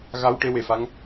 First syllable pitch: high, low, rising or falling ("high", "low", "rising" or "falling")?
rising